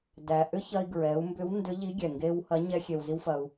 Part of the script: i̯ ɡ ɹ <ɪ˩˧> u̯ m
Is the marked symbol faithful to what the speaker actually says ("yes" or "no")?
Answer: no